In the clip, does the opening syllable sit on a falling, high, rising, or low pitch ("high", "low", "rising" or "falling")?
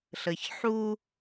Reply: low